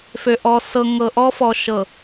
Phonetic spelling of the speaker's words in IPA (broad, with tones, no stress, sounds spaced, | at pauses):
f ø˨ ʔ ɔ˨ s ɤ˨ ŋ ɤ˨ ʔ ɔ˦ f ɔ˨ ʃ ɤ˨